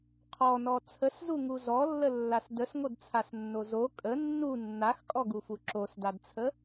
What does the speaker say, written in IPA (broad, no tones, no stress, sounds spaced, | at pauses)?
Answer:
qʰ ɔ n ɔ t͡sʰ ə s z u ŋ u z ɔ lː ə lː a s d ə s ŋ o d t͡sʰ a s nː o z o kʼ ə nː u nː a x kʼ ɔ ɡ u f u ǁ o s d a d t͡sʰ ə